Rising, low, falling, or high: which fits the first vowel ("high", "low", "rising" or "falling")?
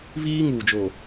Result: high